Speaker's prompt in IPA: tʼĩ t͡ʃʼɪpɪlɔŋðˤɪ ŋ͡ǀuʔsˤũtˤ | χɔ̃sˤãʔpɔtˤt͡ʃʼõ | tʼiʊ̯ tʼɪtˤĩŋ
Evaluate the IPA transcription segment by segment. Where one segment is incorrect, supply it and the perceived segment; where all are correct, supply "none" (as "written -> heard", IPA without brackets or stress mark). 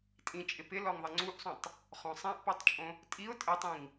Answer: none